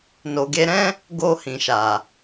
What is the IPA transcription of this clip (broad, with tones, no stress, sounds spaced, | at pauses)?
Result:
n o˨ ɡ e˧ ɾ ɛ̃˦ | ɡ o˧ h ĩ˨ ʃ a˨